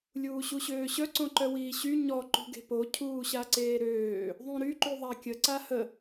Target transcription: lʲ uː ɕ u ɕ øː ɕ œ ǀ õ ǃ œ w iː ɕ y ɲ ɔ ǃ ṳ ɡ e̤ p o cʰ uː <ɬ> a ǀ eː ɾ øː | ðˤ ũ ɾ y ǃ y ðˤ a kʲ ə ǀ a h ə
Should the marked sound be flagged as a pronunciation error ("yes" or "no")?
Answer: yes